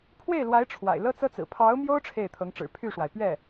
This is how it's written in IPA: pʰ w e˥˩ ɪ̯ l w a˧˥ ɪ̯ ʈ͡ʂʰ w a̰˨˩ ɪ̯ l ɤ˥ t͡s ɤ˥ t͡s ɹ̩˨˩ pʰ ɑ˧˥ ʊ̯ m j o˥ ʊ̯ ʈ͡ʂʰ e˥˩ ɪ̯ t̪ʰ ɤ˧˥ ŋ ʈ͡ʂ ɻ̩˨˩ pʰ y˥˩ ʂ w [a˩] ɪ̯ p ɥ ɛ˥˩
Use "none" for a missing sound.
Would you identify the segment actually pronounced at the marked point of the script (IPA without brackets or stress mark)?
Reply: a˩